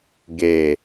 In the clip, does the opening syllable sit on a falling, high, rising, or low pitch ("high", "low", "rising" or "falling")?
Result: low